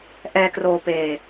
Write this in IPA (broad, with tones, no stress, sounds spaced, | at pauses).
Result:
ʔ ɛː˧ k r oː˧ p eː˧